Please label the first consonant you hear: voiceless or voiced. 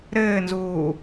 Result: voiced